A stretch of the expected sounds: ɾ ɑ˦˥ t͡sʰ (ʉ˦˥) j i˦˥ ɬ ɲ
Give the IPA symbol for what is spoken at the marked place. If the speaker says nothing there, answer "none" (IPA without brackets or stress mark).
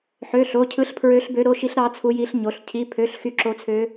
u˦˥